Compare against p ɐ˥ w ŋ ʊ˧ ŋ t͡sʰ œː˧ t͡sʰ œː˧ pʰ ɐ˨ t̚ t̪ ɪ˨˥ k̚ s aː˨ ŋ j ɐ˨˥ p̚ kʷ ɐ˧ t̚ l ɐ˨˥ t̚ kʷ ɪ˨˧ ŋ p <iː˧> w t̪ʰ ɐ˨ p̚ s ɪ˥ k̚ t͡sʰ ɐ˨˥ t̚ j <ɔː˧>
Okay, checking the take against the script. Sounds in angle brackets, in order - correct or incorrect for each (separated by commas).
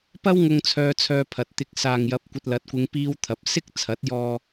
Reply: correct, correct